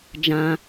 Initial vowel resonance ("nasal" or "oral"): nasal